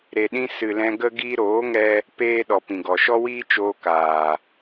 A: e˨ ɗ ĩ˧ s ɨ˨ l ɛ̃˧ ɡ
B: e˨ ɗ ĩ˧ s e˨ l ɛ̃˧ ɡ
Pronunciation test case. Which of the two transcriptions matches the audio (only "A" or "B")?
A